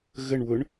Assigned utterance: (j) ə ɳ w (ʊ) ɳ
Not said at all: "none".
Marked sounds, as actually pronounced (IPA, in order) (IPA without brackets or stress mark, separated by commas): ɣ, ʊ